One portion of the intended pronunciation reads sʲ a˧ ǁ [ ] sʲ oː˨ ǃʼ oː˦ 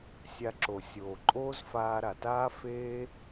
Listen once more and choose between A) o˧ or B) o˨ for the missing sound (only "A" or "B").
B